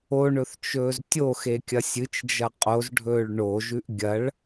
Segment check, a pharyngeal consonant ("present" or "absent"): absent